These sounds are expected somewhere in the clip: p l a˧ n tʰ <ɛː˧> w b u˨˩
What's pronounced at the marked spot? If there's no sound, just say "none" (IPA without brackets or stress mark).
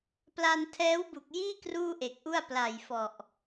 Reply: ɛː˦˥